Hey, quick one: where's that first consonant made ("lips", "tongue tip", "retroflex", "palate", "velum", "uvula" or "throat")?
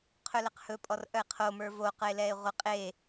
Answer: uvula